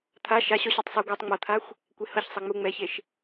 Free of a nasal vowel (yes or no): yes